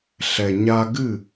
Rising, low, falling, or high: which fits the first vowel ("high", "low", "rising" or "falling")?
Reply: low